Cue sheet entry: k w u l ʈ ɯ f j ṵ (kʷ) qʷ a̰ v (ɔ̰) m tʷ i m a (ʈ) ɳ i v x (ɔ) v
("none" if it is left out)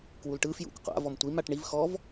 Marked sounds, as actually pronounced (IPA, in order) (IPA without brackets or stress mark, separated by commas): kʷ, ɔ, ʈ, ɔ